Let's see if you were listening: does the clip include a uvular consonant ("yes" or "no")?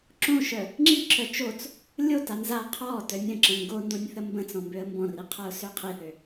yes